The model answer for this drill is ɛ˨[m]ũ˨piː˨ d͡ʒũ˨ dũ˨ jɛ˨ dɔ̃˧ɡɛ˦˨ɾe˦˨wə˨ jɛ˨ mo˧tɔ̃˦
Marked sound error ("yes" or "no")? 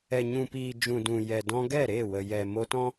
yes